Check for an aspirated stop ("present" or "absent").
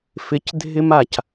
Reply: absent